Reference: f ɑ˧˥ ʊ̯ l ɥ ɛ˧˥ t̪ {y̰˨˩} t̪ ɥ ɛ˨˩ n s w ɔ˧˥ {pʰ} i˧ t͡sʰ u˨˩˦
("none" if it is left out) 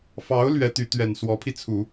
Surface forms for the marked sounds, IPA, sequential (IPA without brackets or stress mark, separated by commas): y˧˥, pʰ